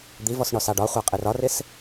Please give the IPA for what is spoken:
d̪ i v ɔ s ɳ ɔ s ɑ ɖ ɒ χʷ ɑ qʼ ɪ r ɒ r ɪ s

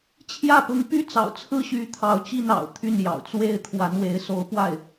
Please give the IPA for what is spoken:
t͡ɕʰ j ä˥˩ p ʊ˧˥ ŋ p y˥ t͡s ɑ̰˨˩ ʊ̯ t͡sʰ ɹ̩˥ ɕ y˧˥ t̪ʰ ɑ˧˥ ʊ̯ t͡ɕ i˥˩ n ɑ̰˨˩ ʊ̯ t̪ʰ y˥˩ n j ɑ̰˨˩ ʊ̯ t͡s w e˥˩ ɪ̯ t̪ʰ w a˧˥ n w e˧˥ ɪ̯ s o˧˥ ʊ̯ p w a˥˩ ɪ̯

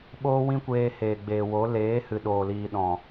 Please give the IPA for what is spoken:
ɓ oː˦ w ĩ˦ kʷ eː˧ h eː˨ ɡ͡b eː˨ w o˨˦ l eː˨˦ h ɨ˨ ɗ oː˨ l iː˨ ɗ ɔ̃˨

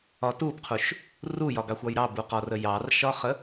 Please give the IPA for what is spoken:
ɒ t u b qʰ u ʃ | r u j ɒ ɡ ɑ xʷ ɒ j ɾ ɑ b u q ɒ r ə j ɑ r ʃ ɒ χ ə

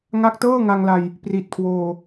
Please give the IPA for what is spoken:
ŋ a˦˥ k̚ t ɤː˥˩ ŋ a˧ ŋ l a˧ j | p r i˨˩ t̚ kʰ w oː˧

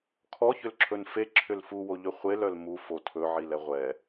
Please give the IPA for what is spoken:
kʰ ɔ ç ʏ l ǁʰ ɵ n f e ǁʰ ʏ l f u w o ʎ ɵ χʷ e l œ l m u f o tʰ ɵ ʕ i l ɛ ʁʷ ɛ

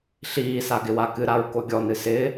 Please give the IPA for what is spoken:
ɬ iː s a ɡ ɪ w a k ɨ ɾ a ɹ k o ɡʲ ɔ n ɨ s ɪː

